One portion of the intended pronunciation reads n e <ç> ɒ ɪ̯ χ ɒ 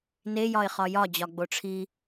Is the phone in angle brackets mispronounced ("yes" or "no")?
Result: yes